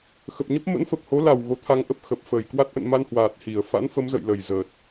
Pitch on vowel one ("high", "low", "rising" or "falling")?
low